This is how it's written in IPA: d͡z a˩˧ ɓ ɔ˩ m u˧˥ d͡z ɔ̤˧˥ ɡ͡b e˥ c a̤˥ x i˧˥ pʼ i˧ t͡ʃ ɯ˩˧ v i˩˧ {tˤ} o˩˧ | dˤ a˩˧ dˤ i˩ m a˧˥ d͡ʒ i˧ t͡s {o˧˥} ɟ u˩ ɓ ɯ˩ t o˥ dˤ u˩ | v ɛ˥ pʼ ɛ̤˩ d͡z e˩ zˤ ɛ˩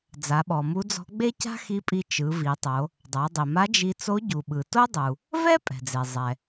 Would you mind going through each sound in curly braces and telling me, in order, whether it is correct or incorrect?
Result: correct, correct

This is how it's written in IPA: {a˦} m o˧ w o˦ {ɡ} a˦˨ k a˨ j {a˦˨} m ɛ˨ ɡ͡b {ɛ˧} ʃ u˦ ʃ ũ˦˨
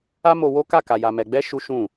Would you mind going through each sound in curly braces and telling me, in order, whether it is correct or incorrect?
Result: correct, incorrect, incorrect, correct

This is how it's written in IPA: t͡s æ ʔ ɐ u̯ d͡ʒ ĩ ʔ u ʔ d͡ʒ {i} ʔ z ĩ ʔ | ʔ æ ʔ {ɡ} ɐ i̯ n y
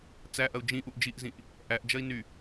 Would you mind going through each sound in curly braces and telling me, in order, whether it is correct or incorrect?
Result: correct, incorrect

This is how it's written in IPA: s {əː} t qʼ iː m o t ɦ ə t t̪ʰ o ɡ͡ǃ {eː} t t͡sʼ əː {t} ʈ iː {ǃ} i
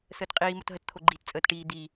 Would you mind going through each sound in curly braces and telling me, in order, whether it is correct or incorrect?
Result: correct, incorrect, correct, incorrect

